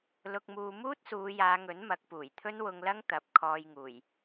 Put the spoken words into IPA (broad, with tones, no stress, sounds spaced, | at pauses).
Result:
l ʊ˧ k̚ m uː˧ m uː˥ t̚ s uː˨˧ j aː˨˧ ŋ ɵ˨˥ n m ɐ˨˥ k̚ p uː˨˩ j t̪ʰ ɵ˥ n w ʊ˧ ŋ l ɐ˥ ŋ t̪ ɐ˨˥ p̚ kʰ ɔː˧ j ŋ uː˨˩ j